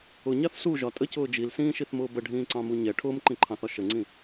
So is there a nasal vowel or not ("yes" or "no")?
yes